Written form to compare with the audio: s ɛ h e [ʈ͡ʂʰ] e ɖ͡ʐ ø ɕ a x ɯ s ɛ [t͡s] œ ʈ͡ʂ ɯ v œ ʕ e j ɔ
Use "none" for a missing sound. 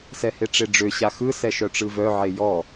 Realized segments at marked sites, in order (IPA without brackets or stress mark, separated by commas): ʈ͡ʂ, ʃ